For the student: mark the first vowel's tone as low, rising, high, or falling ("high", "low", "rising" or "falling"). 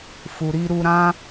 low